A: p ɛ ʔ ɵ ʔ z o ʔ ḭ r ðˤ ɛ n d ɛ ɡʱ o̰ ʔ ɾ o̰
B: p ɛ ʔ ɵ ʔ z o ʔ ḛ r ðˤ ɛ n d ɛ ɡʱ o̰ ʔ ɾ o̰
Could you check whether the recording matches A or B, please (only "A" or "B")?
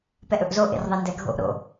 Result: B